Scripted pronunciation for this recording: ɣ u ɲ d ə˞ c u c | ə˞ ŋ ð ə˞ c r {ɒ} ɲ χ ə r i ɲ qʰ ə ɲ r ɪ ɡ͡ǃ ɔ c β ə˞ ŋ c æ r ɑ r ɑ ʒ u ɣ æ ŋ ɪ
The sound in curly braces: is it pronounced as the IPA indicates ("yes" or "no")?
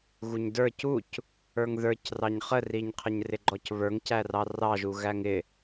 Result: no